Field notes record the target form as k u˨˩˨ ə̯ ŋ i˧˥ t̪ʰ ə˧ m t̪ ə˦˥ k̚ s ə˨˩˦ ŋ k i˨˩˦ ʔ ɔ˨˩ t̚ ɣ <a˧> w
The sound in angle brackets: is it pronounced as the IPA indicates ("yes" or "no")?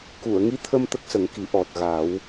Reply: no